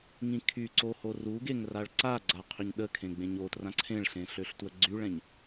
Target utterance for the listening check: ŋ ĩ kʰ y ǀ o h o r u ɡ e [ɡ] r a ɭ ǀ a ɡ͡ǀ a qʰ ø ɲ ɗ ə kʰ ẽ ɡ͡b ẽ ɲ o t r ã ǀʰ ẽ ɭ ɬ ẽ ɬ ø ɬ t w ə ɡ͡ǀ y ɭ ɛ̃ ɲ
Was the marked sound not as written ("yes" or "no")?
yes